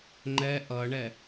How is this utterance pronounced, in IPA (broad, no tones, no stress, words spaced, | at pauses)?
ŋ͡ǃɛ ʔʌɳɛ